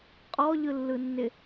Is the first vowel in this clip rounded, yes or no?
yes